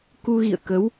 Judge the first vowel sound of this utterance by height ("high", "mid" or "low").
high